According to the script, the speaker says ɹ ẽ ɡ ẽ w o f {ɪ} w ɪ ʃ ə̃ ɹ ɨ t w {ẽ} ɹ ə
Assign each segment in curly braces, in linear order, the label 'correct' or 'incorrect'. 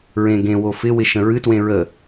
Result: correct, correct

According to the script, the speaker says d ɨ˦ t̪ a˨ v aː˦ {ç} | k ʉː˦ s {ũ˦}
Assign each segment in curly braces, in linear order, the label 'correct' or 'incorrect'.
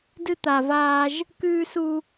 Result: incorrect, incorrect

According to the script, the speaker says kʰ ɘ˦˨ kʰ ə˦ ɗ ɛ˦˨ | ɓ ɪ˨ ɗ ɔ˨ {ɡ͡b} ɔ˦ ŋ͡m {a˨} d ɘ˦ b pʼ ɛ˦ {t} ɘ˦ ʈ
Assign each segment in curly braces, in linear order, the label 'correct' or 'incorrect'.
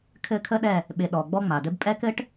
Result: correct, correct, incorrect

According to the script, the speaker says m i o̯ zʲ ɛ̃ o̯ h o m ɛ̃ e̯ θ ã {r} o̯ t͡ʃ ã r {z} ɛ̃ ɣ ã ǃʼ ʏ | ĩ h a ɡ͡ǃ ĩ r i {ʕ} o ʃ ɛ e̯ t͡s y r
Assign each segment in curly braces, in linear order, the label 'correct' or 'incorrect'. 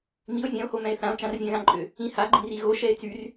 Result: incorrect, incorrect, incorrect

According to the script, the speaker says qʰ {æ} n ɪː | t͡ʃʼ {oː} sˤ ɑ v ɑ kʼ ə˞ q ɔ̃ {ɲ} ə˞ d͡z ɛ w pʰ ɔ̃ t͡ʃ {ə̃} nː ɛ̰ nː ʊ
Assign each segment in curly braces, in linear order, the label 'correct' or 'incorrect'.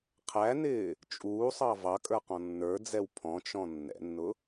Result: correct, incorrect, incorrect, incorrect

